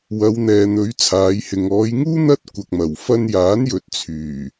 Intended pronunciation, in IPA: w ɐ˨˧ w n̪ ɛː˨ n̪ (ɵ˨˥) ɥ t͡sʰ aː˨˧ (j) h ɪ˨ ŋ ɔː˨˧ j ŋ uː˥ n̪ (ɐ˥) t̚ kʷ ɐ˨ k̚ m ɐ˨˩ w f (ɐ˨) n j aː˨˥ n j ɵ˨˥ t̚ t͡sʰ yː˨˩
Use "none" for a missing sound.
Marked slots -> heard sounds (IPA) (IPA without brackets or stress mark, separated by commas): ɵ˨˥, j, ɐ˥, ɐ˧